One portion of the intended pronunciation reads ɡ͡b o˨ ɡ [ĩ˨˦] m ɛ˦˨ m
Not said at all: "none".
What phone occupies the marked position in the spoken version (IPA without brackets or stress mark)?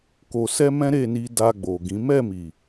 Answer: ĩ˨˦